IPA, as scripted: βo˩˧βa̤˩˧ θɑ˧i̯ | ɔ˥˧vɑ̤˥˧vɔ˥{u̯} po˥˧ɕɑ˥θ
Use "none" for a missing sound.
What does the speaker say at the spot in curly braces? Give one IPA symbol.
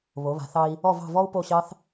u̯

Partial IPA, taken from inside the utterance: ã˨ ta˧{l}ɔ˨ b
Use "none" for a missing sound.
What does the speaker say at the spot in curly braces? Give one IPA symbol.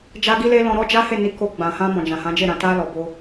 l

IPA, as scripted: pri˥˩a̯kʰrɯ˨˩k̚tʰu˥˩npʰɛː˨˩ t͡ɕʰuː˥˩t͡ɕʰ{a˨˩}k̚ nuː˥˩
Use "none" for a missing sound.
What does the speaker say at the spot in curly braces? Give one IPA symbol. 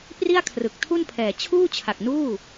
a˨˩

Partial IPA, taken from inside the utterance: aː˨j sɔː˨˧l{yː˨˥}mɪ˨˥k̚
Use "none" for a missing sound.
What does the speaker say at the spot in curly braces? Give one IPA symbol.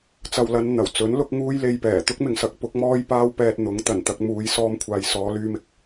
yː˧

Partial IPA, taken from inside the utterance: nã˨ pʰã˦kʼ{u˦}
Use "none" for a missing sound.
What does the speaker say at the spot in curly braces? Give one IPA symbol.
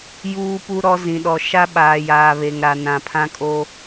o˦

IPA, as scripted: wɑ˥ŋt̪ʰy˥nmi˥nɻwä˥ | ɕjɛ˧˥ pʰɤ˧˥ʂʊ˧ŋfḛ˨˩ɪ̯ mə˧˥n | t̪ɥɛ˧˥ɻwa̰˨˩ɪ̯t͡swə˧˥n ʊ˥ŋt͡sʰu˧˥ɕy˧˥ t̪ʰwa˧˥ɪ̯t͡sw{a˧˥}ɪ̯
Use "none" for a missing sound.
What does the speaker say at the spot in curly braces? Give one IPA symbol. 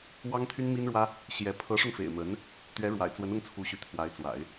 a̰˨˩˦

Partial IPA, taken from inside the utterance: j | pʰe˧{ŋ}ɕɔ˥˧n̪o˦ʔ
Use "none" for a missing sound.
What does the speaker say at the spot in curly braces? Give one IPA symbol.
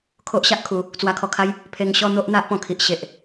ŋ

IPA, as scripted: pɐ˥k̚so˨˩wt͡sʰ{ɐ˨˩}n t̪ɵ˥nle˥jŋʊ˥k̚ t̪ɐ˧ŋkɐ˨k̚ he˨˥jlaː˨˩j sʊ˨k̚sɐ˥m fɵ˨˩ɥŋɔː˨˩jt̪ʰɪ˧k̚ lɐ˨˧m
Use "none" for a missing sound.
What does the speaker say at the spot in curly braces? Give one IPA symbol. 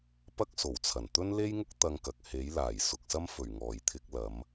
ɐ˨˩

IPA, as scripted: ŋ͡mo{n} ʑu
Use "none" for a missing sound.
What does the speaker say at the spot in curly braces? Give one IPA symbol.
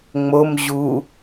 m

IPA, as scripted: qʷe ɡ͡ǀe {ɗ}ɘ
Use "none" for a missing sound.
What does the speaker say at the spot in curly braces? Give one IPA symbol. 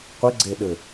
ɗ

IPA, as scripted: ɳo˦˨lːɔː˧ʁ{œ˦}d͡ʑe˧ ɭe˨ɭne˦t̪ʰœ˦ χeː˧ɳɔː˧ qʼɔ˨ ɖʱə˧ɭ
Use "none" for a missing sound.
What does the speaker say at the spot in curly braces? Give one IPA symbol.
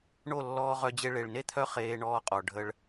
œ˧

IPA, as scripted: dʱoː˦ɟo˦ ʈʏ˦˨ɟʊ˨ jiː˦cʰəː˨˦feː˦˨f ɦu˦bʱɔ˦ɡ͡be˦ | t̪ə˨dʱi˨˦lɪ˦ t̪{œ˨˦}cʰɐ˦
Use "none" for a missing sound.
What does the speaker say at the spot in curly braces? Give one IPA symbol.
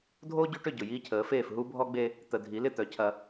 œ˨˦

